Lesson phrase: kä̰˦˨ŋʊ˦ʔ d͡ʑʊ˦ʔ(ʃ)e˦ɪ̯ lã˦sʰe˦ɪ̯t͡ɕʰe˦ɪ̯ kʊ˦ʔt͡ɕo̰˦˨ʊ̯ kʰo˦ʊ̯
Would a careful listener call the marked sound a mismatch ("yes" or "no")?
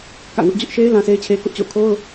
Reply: no